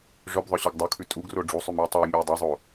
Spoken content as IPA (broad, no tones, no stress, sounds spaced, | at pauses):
ʐ œ b ðˤ œ ɕ ʉ ɡ dˤ u kʰ ʉ tʼ u ɡ r o ɖ͡ʐ u sˤ ʉ m ʉ u̯ tˤ œ i̯ mʲ œ y̯ dˤ ɛ zˤ o